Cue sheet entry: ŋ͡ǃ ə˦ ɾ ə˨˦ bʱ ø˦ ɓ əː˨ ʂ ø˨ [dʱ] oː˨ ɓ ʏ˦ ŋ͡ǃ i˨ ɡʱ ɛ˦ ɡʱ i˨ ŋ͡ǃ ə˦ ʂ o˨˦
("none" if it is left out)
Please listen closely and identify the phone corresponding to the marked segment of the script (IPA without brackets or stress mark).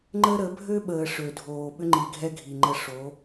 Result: dʱ